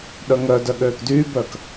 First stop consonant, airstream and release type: implosive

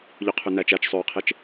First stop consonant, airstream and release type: aspirated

